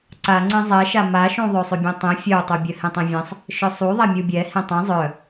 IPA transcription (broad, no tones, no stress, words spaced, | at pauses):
ǀaŋ͡ǀẽ zˤɛʃa maʃũ ðˤøsˤøbʲœ̃tˤĩ fʲœu̯tˤu bʲœhĩtˤĩvʲɛ̃sˤ | ʃœsˤuðˤa mʲubʲɛ hĩtˤɛ̃ zˤœ